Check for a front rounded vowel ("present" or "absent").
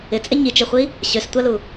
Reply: present